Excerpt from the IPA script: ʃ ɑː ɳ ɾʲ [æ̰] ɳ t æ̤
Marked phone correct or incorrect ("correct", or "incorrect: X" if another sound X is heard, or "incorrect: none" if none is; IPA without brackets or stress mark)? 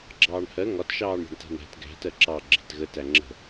incorrect: æ̤